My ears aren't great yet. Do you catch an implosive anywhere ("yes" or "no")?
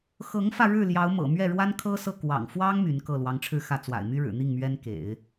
no